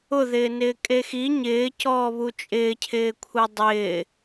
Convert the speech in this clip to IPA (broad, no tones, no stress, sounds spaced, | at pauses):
ʊ ð ɪː n ɪː kʼ e x i ɲ ɪː c ɔː β u t͡ʃʼ ɪː cʰ ɪː kʷʰ ɛ dˤ ɪː